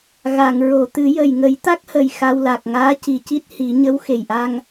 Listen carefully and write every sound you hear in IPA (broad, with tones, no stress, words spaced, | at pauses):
ɣa˨˩˨ŋɹo˨˩˨ t̪ɨ˨˩˦jə˨˩j ŋə˨˩˦jt̪a˦˥k̚hə˨˩j xa˧wla˨˩k̚ ŋaː˧˥ci˨˩ci˦˥t̚ hi˨˩˦ ɲə˧˥w xe˨˩jʔa˧ŋ